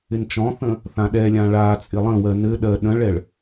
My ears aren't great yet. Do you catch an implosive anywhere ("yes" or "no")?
yes